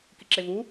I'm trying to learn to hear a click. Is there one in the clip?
yes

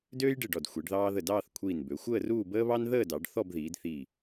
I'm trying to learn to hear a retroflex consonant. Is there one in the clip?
yes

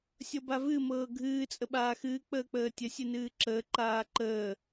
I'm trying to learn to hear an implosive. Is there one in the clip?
yes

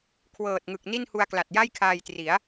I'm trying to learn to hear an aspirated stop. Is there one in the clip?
yes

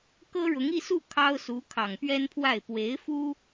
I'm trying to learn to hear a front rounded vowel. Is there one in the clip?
no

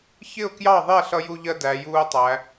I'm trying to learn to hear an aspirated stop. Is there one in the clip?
no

